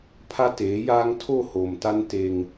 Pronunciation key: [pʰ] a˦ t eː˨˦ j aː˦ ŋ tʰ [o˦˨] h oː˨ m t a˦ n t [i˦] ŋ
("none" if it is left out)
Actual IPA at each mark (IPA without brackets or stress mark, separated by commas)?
pʰ, o˦˨, e˦